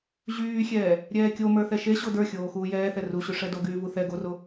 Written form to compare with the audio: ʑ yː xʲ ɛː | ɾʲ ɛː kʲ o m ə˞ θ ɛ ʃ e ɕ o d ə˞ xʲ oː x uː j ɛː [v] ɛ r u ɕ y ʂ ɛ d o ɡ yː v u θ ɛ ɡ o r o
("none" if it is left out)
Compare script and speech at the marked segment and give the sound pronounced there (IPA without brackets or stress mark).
θ